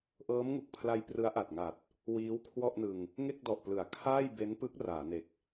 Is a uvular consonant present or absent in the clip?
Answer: absent